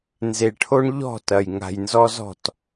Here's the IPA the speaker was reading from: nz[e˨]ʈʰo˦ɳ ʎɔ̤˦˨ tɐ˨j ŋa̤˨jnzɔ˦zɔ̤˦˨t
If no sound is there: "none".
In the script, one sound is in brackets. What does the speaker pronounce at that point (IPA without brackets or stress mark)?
e˨